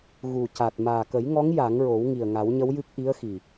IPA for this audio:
ɣ u˨˩ c a˨˩ t̚ m aː˨˩ k ə˨˩˦ j ŋ ɔ˧˥ ŋ j a˨˩˦ ŋ ɹ o˨˩˦ w ŋ i˨˩ ə̯ ŋ a˨˩˦ w ɲ ə˧˥ w j ɨ˦˥ k̚ ʔ i˧˥ ə̯ x i˨˩

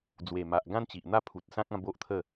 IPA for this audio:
d͡z w e˨˩ m a˨ ʔ ɡ ã˦ n t͡ɕ i˨ ʔ n̪ a˦ pʰ u˨ t̚ s ã˦ k̚ ã˥˧ b o˦ ʔ t̪ʰ ə˥˧

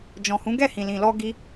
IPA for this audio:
d͡ʒ ɔ̃˨ h ũ˨˦ ɡ ɛ˦˨ h ĩ˨ l ĩ˨ l ɔ˧ ɡ i˧

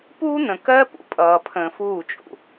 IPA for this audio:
p uː˦ n̪ ə̃˨ k ɜ˦ p ṵ˨ pʼ ʌː˨ pʰ ə̃ː˨ f uː˦˨ t͡ʃʼ ṵ˨

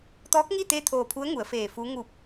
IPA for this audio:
t̪ ɔː˧˥ k̚ ŋ i˥˨ t̪ eː˥˨ t̪ʰ oː˧˩ pʰ u˧˥ ə̯ ŋ u˩˧ ə̯ f eː˧˩ f uː˧˥ ŋ uː˧˩ p̚

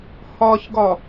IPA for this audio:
h ɒ ç ɡ ɒ

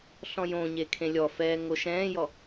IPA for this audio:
ɬ ɔ̃ j õ ɲ e kʰ ẽ lʲ ɔ f ɛː ŋ o ʃ ɛ̃ː j ɔ

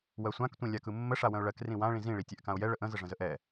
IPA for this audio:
w ɜ sʷ ã k tʷ ĩ lʲ a k ɯ mː ə ʂ a w ə̃ ʊ̯ ɭ ɜ k r ĩ w ã ɭ ĩ z ĩ ɭ i tʲ ɛ ʔ k ã ʊ̯ j ɛ ɭ ə ʔ ə̃ z ə ʐ ə̃ z ə ʔ ɛ

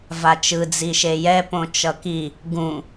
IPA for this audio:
v a t͡ʃ ɯ d͡z i ʃ e j ɛ p õ t͡ʃ ʌ k i | ɡ ũ

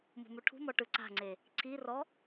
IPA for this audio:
m ṳ m u ʈʰ ṳ m ɔ ʈ ɯ ǀ a̤ ŋ͡ǀ e | ǀʰ i r ɔ

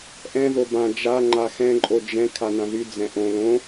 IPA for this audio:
ʔ ɛ̃ ð o b ã d͡ʒ a ŋ͡ǃ a x ɛ̃ ǃʼ o d͡ʒ ɛ̃ kʰ a n ã ð y d͡z ɛ̃ ʔ õ l õ

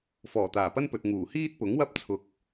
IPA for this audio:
f ɔː˨˩ t̪ aː˨˩ p ɐ˥ n p ɵ˨ t̚ ŋ uː˨˩ h iː˥ t̚ p ʊ˨˥ ŋ w ɐ˥ p̚ t͡sʰ ʊ˧ k̚

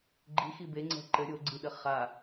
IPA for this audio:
ɡ͡ǃ i x i b e ŋ͡ǀ ɛ̤ ǃ ɘ ɾʲ o ɡ͡ǀ i ɗ ɘ χ a

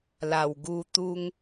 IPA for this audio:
l a˨˩ w ɡ u˧ t̪ u˦ ŋ

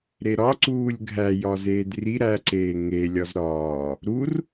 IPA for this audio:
ɾ e ɾ ɒ ǀ uː lʲ ɡʱ æ j ɒ z eː d r i ɾ æ ǀ eː ŋ e lʲ ɒ z ɾ ɒː | ɾ u r

